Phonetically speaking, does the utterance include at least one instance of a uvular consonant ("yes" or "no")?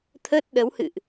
no